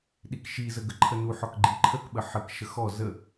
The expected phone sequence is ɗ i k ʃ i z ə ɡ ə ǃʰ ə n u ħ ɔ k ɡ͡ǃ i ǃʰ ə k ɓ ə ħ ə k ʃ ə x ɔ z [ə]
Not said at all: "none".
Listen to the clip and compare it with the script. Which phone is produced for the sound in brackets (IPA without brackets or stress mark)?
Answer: ə